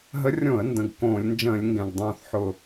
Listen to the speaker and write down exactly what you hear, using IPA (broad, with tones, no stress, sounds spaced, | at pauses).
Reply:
ɦ ə˧˥ rʲ õ˧˩˧ ə̯ n d ə̃˨˩ ɡ k õː˧˩˧ lʲ n d͡ʒ ə̃ː˧˩˧ lʲ ŋ ɡ ɛ̃˨˩ ɡ dˤ õː˨˩ θ ħ ʊ˨˩